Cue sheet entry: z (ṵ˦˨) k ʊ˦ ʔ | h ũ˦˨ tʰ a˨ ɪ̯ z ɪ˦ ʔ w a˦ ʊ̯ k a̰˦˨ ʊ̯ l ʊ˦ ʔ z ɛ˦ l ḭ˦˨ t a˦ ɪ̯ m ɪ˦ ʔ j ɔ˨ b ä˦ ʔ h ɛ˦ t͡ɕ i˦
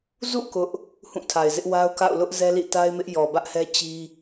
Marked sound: correct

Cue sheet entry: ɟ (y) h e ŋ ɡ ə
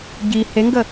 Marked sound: incorrect: i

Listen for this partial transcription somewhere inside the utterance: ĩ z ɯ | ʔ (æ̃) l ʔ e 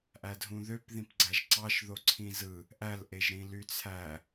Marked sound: incorrect: æ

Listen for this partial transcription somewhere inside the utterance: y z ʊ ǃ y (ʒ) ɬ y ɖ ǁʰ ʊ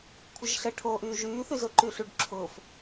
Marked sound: incorrect: none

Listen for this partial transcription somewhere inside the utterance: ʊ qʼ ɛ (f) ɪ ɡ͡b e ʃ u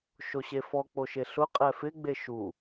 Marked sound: correct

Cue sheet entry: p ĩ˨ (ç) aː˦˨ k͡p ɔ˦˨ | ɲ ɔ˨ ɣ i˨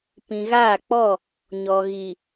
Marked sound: incorrect: ɣ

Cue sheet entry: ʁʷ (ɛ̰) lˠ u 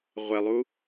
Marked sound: incorrect: ɛ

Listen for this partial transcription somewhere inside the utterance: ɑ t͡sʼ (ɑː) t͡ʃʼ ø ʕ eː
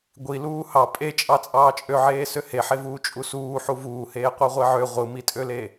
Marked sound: correct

